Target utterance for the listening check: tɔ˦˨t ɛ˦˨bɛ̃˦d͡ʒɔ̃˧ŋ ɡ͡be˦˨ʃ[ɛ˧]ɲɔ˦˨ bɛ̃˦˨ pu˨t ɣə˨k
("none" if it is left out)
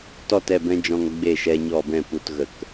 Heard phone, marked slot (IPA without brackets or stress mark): ɛ˧